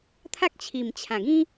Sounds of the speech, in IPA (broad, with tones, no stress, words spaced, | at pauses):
t̪ʰa˦k̚t͡ɕʰi˨˩mt͡ɕʰã˨˩ɡĩ˦